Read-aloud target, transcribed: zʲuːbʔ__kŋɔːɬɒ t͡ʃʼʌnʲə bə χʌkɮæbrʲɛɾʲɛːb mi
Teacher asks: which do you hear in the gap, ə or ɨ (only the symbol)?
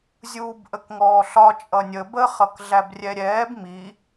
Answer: ə